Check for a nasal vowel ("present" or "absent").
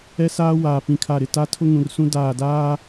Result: present